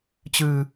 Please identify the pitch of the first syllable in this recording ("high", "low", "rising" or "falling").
low